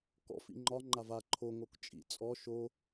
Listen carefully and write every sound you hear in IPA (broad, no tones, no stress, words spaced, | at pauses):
kɔ̰f ḭŋ͡ǃɒ ŋ͡ǃava ǃʰo ŋokt͡ʃʼḭ t͡sʼɔ ʃo